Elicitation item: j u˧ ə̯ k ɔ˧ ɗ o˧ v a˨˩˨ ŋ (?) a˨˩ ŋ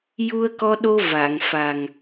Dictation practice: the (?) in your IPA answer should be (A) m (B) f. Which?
B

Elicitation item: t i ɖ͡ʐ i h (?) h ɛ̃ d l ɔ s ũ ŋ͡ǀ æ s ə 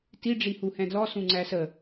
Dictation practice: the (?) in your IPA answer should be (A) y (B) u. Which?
B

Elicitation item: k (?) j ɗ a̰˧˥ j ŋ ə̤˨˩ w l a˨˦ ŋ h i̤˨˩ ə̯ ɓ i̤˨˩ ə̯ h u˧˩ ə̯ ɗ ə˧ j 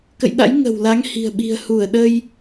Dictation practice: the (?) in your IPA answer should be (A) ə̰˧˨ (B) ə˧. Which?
A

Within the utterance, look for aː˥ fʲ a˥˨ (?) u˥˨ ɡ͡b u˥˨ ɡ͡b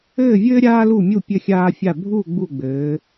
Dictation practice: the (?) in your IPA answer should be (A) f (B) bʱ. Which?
B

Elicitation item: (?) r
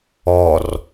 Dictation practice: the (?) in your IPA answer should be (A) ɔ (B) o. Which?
A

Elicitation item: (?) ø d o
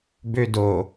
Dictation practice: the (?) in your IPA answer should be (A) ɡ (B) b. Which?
B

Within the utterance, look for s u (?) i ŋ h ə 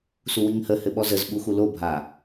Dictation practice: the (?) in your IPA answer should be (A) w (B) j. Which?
A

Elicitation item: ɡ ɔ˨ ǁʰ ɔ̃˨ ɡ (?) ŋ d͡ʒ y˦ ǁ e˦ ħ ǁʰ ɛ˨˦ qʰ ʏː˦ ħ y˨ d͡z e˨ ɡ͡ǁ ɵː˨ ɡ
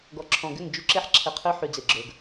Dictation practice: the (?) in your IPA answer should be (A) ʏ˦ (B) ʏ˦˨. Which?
B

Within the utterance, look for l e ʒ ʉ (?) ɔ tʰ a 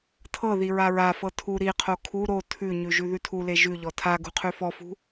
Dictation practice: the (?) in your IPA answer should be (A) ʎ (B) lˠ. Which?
A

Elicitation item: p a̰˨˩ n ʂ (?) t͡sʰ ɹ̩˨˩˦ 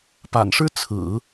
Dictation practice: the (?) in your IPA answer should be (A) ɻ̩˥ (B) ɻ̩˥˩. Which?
A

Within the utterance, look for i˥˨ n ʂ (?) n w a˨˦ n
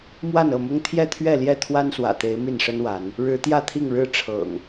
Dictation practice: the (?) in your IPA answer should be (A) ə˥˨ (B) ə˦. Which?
B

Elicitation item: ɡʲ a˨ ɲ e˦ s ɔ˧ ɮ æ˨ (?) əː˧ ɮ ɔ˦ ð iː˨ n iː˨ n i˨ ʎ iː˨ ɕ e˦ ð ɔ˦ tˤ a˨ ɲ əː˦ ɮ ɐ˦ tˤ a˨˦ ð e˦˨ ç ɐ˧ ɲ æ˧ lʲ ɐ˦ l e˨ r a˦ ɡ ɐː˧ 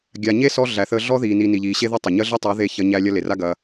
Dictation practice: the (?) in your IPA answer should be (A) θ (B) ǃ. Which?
A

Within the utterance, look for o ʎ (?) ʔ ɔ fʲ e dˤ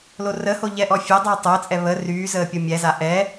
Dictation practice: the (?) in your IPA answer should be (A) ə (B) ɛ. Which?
B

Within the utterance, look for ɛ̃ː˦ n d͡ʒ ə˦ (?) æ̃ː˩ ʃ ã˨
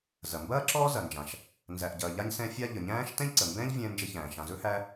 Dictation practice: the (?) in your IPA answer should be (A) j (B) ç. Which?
B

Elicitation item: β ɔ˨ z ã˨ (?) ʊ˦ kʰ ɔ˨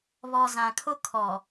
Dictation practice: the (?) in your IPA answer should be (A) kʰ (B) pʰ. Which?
A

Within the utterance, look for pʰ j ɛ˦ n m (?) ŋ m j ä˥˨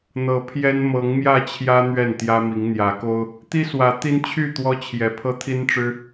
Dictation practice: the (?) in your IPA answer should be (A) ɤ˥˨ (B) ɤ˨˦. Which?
B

